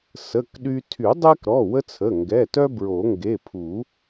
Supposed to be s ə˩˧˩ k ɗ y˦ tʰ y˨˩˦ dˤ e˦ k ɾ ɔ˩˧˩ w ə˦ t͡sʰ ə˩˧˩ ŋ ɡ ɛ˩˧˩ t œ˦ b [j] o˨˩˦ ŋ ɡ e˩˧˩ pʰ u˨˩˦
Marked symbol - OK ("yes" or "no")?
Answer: no